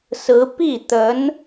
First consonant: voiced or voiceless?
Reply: voiceless